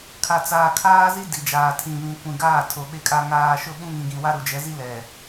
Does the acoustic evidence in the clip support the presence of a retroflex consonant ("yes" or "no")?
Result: no